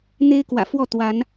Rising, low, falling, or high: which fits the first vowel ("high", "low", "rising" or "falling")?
high